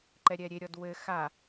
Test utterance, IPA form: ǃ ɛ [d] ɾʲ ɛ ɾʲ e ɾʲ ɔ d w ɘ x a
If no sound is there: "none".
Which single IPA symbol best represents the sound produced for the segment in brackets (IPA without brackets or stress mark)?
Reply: none